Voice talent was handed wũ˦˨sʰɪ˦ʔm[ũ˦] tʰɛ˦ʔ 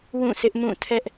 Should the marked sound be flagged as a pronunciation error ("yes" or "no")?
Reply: yes